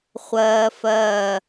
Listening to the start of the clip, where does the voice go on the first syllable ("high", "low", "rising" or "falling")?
high